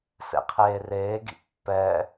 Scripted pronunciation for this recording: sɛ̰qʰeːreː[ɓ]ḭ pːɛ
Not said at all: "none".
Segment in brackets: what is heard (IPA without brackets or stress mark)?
ɡ